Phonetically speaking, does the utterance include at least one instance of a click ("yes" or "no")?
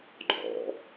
yes